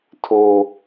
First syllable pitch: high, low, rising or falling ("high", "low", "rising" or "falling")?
low